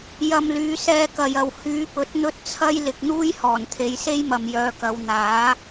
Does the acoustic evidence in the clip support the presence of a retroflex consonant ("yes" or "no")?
no